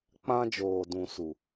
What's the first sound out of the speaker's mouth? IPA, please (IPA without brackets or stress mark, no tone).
k͡p